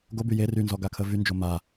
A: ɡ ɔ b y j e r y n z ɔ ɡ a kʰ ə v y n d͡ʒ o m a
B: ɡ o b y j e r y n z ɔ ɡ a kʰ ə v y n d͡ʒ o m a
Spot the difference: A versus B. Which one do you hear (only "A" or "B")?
B